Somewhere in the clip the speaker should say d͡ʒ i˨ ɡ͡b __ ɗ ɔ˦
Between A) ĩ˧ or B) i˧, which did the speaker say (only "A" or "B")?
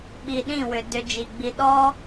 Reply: B